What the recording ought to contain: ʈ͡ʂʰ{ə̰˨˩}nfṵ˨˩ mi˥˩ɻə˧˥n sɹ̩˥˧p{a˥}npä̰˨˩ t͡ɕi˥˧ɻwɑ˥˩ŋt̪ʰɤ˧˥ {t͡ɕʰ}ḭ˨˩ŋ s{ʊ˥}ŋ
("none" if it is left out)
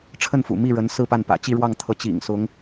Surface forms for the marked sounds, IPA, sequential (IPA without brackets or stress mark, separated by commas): ə˥˩, a˥˩, t͡ɕ, ʊ˧˥